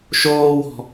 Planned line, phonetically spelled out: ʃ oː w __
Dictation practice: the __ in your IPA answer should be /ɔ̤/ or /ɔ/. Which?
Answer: ɔ̤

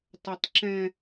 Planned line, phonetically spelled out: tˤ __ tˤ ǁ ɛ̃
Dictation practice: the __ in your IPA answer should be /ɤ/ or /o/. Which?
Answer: ɤ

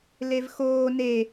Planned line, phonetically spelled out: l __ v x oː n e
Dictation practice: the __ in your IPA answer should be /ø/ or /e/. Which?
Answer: e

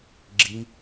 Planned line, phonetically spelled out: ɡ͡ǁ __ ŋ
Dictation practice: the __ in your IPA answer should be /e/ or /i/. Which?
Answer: i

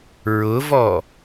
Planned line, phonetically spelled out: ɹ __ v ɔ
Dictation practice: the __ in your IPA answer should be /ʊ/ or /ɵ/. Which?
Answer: ʊ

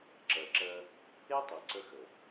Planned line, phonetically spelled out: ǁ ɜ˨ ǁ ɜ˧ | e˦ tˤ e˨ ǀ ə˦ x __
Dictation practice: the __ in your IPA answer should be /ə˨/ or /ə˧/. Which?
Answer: ə˨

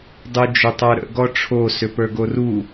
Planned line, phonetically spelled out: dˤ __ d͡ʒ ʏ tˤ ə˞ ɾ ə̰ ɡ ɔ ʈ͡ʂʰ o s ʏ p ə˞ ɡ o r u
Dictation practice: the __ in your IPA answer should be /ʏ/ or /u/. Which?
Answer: u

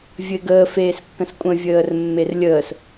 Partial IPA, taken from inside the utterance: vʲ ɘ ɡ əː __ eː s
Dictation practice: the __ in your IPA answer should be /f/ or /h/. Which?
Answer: f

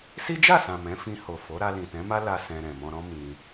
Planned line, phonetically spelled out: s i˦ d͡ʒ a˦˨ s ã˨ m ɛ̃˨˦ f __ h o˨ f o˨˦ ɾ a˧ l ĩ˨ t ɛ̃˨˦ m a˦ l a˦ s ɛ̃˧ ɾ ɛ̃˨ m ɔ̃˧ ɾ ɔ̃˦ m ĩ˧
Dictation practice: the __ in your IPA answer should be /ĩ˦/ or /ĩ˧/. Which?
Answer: ĩ˧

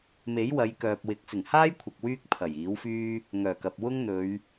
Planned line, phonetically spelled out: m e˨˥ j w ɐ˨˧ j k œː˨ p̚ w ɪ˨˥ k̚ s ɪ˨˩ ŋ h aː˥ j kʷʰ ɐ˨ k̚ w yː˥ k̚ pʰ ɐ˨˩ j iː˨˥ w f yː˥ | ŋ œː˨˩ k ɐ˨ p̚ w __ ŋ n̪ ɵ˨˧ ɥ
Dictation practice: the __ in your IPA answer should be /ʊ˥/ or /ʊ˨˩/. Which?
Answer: ʊ˥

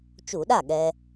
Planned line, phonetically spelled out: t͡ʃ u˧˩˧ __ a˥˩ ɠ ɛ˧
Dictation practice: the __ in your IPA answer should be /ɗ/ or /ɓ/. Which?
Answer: ɗ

